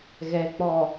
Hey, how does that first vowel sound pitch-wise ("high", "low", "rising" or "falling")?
low